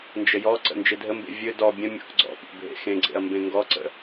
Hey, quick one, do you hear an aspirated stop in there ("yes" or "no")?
no